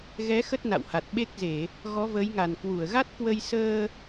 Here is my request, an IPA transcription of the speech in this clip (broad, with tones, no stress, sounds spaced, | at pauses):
ɣ ɛ˨˦ x ə˦˥ t̚ n a̰˧˨ w h a˨˩ t̚ ɓ e˦˥ k̚ z e˧˩˨ | ɣ ɔ˨˦ v əː˨˦ j ŋ a˨˩ n k w u˧˩ ə̯ ɣ a˦˥ t̚ k w ə˧ j s əː˧